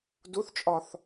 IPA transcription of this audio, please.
d u θ t͡ʃʼ ɒ θ

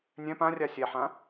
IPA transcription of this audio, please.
nʲ ɛ̃ p ã rʲ a sʲ ɛ ħ ã

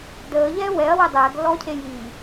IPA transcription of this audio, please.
d əː ʎ ɛː w ɛ ɐ̯ w ɛ dˤ ɛː ɡ lː ɔː cʰ e j iː

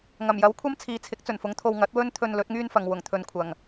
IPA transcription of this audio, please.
ŋ ɐ˨˩ m j ɐ˨˥ w kʷʰ ɐ˥ m t͡sʰ iː˨ t͡sʰ ɪ˨˥ k̚ t͡s ɵ˨˩ n f ʊ˨˥ ŋ t̪ʰ o˧ w ŋ ɐ˨˥ t̚ w ɵ˥ n t̪ʰ ɵ˧ n l ɵ˨˥ t̚ ŋ yː˥ n f ɐ˨ ŋ w ʊ˨˩ ŋ t̪ʰ ɵ˨ n kʷʰ ɐ˨˩ ŋ

